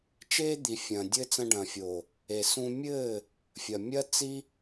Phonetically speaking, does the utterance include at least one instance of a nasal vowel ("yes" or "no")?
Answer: yes